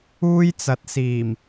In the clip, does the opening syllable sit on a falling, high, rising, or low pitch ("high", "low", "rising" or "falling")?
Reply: high